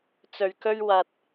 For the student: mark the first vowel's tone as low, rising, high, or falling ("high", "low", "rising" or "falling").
low